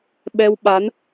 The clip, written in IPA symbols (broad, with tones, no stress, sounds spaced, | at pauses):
ɓ ɛ˧ w ɓ a˨˦ n